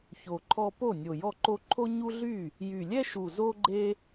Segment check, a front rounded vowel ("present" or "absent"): present